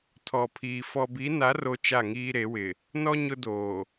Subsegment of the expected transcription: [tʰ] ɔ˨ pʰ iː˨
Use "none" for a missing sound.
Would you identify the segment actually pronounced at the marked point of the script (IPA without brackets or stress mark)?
tʰ